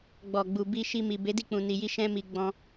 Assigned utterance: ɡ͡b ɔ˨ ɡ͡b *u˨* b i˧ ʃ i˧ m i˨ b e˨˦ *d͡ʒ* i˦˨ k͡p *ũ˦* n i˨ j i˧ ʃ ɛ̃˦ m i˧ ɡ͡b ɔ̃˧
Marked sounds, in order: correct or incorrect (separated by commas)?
correct, incorrect, incorrect